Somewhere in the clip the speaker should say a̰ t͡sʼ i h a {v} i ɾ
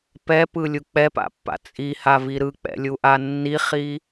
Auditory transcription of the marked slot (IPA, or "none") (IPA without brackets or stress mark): v